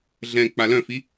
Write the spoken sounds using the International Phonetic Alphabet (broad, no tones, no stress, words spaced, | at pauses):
ɮɛ̃ k͡palœ̃fi